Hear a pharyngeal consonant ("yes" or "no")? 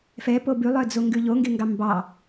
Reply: no